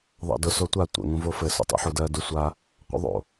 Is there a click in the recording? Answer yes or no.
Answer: no